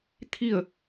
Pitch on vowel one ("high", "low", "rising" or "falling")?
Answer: falling